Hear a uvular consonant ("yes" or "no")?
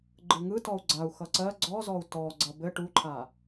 no